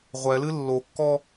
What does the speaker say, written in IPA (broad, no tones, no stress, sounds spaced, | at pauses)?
ʁʷ ɛ l ɨ lː o kː ɔ